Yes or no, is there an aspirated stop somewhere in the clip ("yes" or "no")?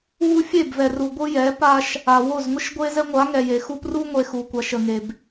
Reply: no